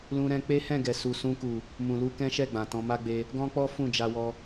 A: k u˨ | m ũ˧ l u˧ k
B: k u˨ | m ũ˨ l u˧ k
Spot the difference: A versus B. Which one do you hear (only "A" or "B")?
B